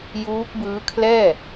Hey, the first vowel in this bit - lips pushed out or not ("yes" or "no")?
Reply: yes